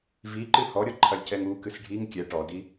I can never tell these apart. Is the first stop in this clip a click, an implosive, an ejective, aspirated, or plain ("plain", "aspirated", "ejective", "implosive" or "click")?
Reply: click